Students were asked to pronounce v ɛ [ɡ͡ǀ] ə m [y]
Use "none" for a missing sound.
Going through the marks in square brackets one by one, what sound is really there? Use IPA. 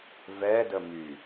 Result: d, y

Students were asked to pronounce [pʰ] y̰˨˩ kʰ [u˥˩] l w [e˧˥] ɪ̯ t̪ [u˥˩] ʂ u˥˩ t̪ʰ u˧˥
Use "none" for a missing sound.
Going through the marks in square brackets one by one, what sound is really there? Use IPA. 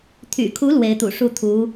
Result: t̪ʰ, u˧˥, e˧˥, ṵ˨˩

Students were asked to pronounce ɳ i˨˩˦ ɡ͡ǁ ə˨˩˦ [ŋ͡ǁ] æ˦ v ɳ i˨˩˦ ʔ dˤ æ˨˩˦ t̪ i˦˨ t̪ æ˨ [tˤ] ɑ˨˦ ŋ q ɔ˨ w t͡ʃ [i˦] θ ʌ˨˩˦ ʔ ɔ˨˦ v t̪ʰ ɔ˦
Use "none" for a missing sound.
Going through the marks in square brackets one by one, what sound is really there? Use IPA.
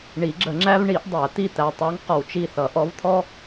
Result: ŋ͡ǁ, tˤ, i˦˨

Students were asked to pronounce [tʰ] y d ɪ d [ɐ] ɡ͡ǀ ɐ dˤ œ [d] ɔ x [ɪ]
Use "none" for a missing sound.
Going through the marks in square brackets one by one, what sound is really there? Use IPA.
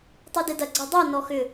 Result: tˤ, ɐ, n, ʏ

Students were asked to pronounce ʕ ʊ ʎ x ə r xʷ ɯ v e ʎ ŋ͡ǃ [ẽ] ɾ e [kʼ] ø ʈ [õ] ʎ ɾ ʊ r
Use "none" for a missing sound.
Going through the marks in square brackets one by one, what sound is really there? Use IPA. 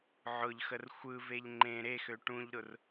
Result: ẽ, x, ũ

